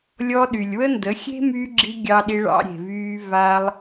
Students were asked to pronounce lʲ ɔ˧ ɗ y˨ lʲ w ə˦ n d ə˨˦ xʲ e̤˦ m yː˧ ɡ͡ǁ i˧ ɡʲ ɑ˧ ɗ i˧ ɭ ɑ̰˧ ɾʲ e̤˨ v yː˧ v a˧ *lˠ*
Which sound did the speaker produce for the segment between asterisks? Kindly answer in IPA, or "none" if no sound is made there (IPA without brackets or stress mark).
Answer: lˠ